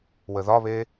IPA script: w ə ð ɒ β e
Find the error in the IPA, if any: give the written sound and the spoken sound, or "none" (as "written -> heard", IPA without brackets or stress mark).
none